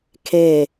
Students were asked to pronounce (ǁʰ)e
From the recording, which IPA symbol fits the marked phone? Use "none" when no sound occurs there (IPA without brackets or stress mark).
kʰ